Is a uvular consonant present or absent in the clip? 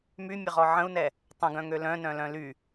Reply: present